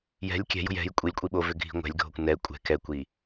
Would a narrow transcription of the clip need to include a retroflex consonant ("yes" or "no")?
no